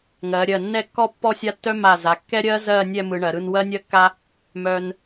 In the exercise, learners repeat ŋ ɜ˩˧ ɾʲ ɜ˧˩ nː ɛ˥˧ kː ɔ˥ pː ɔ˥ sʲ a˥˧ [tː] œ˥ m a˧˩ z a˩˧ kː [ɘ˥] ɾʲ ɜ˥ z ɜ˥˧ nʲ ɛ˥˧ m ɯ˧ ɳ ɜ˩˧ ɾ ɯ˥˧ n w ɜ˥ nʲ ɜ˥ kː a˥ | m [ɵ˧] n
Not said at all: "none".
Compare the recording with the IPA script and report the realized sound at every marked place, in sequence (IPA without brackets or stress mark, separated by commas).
tː, ɛ˥, œ˧